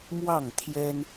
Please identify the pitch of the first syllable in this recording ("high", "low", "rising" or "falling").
falling